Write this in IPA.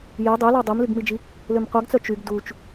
j ɛ dˤ ø l ɔ dˤ œ m l y ɡ m i d͡ʒ i | l ø m qʷ a ɡ t͡s œ t͡ʃ y ɡ d u t͡ʃ

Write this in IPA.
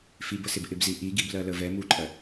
f i b ə s ɪ b ʔ ɪ b z i ʔ i ɡ i b l ɜ l ə v ɛ m u ǃʼ ɜ

